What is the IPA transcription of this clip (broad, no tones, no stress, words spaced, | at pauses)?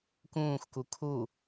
kũːxku kʰu